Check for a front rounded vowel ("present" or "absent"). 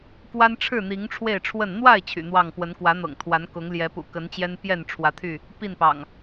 present